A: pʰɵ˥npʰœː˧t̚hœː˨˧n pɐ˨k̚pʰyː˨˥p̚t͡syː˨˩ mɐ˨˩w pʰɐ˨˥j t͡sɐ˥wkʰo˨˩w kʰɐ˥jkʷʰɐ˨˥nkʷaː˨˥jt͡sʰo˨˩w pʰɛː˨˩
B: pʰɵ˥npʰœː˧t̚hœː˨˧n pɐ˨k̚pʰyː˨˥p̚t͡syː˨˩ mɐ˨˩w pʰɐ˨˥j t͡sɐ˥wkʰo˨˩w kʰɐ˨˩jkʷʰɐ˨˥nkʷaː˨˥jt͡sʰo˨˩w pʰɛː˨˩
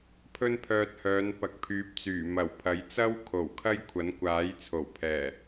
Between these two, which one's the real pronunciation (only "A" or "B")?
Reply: A